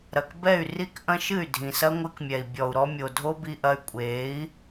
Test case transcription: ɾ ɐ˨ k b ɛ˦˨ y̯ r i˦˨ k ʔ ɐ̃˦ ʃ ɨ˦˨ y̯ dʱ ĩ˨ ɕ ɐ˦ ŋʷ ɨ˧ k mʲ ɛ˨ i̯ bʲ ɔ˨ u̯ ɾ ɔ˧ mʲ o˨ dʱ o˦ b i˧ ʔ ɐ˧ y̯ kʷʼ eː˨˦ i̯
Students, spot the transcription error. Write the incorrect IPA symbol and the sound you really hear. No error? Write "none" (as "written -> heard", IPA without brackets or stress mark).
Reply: ɕ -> s